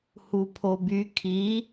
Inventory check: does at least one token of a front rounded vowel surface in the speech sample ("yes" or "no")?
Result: yes